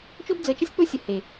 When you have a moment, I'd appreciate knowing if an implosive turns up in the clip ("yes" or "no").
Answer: no